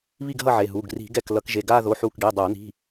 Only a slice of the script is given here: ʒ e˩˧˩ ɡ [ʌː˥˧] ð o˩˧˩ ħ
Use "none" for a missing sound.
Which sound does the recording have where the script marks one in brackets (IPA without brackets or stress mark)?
aː˥˧